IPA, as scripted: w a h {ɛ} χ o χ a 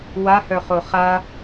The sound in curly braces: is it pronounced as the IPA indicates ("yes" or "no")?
no